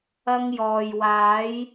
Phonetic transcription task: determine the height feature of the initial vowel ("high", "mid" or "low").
low